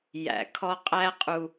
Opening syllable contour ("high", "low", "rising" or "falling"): low